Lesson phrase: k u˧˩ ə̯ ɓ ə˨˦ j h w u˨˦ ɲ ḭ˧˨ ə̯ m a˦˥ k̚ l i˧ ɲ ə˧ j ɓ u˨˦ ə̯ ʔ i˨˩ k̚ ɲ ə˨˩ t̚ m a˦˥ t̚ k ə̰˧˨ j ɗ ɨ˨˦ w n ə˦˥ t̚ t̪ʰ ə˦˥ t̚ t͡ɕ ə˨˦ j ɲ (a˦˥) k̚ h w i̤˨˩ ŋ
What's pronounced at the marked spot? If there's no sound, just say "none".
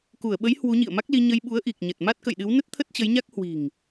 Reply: a˦˥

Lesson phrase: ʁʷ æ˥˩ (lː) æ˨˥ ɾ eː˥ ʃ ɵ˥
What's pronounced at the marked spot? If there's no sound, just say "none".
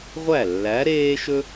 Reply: lː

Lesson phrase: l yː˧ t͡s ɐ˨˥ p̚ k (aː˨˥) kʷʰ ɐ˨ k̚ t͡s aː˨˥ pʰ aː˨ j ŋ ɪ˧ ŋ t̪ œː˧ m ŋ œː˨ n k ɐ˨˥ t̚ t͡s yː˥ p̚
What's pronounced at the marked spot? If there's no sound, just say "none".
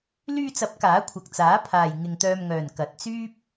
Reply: aː˨˥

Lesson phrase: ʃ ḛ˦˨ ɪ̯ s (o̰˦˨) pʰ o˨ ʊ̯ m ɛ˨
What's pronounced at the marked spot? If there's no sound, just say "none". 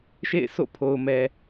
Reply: o̰˦˨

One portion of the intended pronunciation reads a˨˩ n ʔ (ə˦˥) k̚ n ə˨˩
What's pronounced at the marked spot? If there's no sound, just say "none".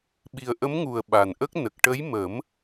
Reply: ə˦˥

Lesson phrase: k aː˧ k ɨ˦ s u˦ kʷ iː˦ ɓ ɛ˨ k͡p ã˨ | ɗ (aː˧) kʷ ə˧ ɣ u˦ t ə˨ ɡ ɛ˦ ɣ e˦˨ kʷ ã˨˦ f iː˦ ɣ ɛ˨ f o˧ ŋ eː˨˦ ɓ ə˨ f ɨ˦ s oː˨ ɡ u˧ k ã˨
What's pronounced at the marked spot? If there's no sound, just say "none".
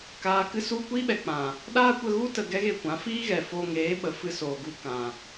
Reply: aː˦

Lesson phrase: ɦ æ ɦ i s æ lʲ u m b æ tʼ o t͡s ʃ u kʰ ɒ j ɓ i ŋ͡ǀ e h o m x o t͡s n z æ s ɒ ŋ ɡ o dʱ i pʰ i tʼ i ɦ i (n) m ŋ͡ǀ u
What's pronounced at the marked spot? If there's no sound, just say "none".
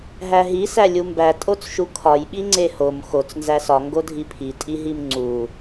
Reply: none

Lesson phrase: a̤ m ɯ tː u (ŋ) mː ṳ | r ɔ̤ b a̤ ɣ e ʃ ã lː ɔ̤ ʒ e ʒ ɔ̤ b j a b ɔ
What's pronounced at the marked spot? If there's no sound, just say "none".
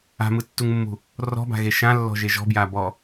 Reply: ŋ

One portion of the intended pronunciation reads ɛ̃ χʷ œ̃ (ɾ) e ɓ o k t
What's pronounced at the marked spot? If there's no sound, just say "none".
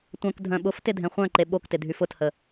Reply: ǃ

